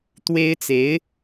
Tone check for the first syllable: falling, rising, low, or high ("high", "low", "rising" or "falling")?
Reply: high